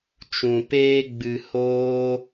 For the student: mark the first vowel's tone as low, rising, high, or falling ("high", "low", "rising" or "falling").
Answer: low